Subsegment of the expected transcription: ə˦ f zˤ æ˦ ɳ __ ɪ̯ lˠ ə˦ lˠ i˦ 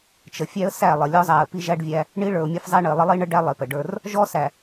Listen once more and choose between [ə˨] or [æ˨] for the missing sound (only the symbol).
ə˨